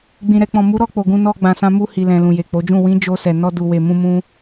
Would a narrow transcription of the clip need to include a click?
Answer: no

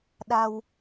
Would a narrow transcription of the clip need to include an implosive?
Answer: yes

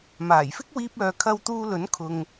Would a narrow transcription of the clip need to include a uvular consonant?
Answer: no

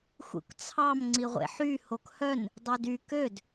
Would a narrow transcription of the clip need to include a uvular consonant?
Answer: yes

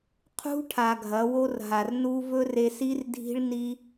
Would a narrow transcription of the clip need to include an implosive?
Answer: no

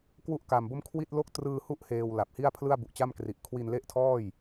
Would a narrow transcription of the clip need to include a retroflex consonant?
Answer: no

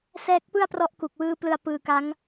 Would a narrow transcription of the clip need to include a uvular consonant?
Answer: no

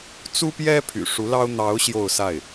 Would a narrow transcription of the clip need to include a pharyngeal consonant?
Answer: no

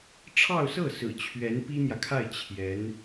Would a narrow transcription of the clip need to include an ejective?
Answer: no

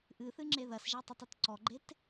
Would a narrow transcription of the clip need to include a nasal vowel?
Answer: no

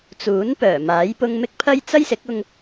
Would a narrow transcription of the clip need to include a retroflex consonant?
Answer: no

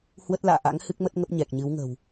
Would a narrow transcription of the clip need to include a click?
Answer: no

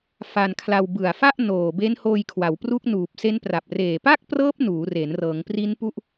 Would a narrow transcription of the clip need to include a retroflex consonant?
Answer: no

